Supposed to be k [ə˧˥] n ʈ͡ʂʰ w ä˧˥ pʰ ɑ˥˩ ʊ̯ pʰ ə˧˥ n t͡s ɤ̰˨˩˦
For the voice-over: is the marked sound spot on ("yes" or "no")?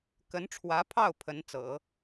yes